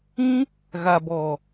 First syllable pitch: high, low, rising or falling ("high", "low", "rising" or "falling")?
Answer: high